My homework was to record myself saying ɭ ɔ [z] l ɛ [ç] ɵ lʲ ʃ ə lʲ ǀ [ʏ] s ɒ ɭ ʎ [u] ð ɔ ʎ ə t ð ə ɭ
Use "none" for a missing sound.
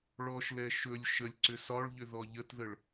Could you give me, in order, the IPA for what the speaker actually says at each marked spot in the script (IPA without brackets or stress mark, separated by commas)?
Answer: ʃ, ʃ, ʏ, ʏ